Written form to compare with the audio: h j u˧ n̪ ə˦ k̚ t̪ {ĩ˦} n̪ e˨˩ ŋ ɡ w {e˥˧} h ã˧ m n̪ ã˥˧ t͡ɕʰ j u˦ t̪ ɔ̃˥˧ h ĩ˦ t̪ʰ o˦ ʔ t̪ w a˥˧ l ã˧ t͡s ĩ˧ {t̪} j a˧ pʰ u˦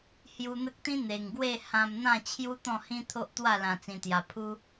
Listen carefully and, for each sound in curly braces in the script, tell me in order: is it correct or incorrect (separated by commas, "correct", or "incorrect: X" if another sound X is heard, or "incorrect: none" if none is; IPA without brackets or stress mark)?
correct, correct, correct